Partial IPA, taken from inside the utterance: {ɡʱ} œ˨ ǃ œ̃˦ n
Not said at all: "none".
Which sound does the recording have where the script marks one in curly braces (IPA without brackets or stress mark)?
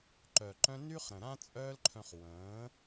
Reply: ǃ